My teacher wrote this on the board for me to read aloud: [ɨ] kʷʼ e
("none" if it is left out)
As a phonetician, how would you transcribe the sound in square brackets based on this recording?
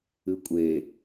ɨ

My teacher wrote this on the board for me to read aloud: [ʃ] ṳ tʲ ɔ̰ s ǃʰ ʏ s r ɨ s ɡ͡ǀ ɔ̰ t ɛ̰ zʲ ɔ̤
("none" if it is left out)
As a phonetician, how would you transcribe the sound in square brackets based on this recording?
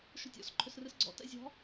ʃ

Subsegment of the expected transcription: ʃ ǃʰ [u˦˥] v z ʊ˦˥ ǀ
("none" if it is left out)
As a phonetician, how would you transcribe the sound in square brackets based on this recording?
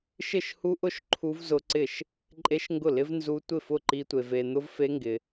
u˦˥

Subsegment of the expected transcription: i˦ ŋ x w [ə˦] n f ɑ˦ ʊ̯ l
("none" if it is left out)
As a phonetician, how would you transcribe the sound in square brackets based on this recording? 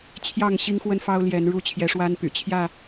ə˦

